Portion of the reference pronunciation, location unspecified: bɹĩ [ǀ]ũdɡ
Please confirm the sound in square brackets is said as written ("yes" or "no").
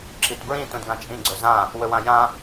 no